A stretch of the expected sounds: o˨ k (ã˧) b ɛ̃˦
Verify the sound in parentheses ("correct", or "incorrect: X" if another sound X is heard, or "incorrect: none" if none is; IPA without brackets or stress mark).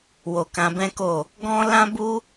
correct